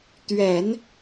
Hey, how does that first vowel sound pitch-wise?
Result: low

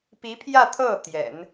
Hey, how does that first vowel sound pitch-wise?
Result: rising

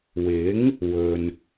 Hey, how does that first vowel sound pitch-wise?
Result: rising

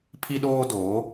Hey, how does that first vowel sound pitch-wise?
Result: high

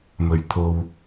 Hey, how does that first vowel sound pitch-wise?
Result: low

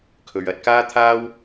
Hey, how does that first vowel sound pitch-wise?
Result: low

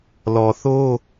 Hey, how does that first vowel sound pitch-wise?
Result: low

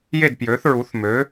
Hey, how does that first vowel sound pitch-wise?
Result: falling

